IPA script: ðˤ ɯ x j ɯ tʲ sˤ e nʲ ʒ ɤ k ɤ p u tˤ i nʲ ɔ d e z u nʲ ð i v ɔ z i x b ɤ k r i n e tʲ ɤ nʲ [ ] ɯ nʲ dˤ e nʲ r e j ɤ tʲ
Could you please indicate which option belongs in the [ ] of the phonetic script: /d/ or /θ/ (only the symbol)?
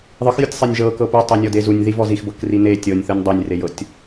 θ